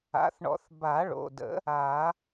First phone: a̰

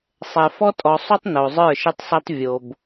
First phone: sˤ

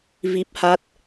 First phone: v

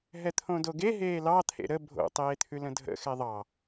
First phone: ɦ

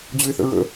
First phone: d͡ʑ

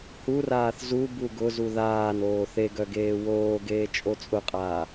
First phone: h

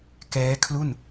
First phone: k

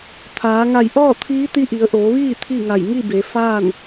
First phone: t̪ʰ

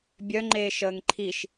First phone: bʲ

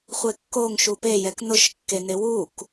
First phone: χʷ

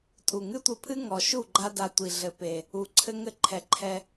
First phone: tʼ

